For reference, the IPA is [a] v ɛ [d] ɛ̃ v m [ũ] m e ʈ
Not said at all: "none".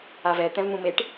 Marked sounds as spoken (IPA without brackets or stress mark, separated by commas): a, t̪, ũ